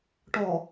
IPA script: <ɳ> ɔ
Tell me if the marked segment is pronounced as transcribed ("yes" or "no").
no